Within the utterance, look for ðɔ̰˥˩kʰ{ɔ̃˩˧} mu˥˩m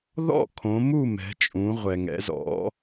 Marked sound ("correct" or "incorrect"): incorrect